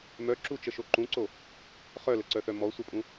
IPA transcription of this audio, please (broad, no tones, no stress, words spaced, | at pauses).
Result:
mœǁut͡ʃəʃo ǃũǀo | χœləǀœθœ mɔ sʷəpʼũ